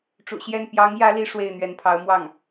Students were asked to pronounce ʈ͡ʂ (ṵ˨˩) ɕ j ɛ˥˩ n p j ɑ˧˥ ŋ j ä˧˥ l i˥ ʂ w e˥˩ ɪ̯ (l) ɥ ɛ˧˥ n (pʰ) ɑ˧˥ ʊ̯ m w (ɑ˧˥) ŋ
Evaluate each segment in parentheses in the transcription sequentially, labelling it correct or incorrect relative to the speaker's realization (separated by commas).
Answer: correct, incorrect, correct, incorrect